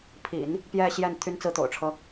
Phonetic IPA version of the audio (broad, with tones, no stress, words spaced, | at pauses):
pʰḭ˨˩˦n | pjɛ˥˧ɕjɛ˥˩n t̪ʰy˥nt͡sɹ̩˥t̪o̰˨˩ʊ̯ʈ͡ʂʰɤ˥